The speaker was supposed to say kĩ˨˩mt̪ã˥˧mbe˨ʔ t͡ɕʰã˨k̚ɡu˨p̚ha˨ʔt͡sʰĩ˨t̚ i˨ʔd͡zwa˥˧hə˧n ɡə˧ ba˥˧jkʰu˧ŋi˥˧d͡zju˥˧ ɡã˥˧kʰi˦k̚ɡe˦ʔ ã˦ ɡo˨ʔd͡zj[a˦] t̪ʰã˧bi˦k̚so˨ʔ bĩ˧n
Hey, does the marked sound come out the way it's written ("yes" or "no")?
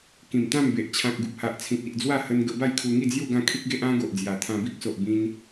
no